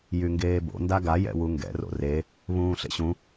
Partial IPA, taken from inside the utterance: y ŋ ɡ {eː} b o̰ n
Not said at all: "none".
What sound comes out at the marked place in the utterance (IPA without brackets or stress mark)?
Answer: eː